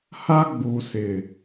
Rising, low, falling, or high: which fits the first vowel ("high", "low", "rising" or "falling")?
high